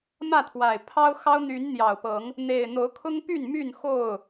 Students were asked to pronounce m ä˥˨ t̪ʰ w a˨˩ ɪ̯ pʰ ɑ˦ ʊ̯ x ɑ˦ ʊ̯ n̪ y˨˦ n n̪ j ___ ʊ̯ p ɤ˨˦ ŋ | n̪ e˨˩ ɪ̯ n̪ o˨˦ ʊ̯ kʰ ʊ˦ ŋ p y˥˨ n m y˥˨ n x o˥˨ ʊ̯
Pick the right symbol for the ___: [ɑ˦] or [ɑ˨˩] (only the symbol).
ɑ˨˩